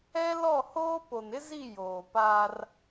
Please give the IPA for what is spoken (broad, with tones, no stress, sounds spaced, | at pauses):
ɛ˦ l ɔ˦˨ h oː˦ p o˨ n ɪ˦ z i˦˨ j oː˨ p a˦ r